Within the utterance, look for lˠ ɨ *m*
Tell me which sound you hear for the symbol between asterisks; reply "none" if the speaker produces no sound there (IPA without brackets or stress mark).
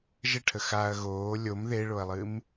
m